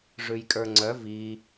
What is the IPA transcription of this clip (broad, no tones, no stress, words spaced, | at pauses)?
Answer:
ʐʉjkʼə˞ŋ͡ǀœ vi